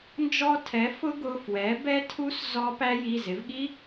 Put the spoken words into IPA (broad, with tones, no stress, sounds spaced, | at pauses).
n d͡ʒ ɔ˧ tʰ ɛ˩˥ f ʊ˦˥ ɡ ʊ˩˧˩ f w ɛ˩˥ b ɛ˦˥ tʰ u˦˥ s z ɔ˦˥ p æ˦˥ j i˩˧˩ z ɪ˩˥ v ɠ i˦˥